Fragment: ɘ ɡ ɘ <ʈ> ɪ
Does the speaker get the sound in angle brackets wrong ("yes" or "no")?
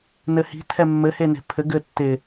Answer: yes